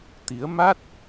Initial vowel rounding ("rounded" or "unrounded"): unrounded